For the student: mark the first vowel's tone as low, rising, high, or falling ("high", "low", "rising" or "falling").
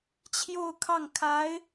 falling